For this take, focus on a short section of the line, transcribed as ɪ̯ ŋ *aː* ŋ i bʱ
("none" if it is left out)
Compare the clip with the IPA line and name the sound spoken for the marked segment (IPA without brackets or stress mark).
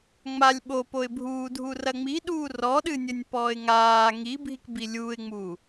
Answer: aː